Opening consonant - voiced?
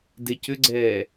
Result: yes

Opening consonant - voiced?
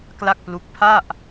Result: no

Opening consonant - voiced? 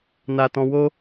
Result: yes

